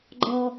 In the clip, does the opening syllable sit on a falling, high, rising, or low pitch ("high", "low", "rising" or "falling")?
low